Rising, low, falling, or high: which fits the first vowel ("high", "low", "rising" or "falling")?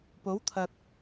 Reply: rising